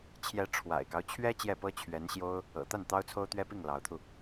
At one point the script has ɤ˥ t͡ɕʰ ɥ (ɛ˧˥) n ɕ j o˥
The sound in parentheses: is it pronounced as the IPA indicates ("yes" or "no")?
yes